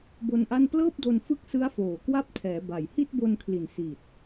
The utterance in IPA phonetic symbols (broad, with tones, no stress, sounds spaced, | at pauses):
b o˧ n ʔ a˥˩ n p l ɤː˥˩ p̚ d o˧ n f ɯ˥˩ k̚ s ɯ˦˥ a̯ f oː˨˩ k w a˦˥ p̚ tʰ ɛː˩˦ b a˨˩ j h i˥˩ t̚ b o˧ n kʰ l i˨˩ n s i˨˩ t̚